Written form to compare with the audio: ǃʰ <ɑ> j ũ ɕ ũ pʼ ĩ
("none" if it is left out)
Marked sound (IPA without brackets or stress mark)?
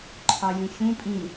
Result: ɑ